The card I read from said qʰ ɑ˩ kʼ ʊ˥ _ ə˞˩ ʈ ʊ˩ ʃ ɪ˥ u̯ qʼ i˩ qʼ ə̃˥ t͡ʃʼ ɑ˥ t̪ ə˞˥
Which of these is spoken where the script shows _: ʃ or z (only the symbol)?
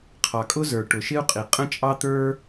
z